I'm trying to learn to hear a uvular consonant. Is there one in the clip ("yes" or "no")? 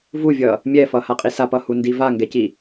yes